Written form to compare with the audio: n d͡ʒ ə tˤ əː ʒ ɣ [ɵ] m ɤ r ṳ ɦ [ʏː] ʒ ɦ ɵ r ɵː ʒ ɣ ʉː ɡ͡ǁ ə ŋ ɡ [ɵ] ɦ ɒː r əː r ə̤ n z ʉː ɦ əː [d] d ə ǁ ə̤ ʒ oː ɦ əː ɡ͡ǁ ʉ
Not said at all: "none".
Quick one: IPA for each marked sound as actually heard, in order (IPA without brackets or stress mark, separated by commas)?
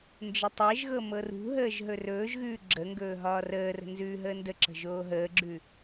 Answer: ɤ, əː, ɵː, n